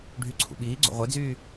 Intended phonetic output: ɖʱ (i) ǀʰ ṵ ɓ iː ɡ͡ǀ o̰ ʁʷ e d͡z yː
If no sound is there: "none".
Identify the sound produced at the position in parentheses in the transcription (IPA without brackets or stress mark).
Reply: y